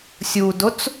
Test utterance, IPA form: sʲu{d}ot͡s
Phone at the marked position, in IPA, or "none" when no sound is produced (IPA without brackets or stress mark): d